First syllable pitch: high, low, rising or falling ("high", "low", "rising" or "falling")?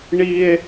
high